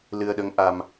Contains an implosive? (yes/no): yes